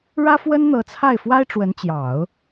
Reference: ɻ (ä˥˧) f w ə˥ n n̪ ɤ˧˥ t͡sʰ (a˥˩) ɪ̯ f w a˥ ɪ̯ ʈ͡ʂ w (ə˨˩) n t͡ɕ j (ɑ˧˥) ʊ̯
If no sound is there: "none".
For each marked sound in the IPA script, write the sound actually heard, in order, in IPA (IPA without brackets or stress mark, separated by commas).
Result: ä˥, a˥˩, ə˧˥, ɑ˨˩˦